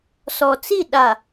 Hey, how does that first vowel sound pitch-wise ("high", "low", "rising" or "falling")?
low